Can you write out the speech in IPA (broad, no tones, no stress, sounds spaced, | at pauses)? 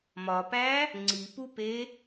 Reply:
m ɒ p æ | ŋ͡ǀ i p u p e